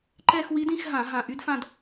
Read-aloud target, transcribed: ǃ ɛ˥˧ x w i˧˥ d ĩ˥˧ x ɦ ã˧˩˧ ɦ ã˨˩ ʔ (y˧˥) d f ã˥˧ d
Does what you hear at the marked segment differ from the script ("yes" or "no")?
no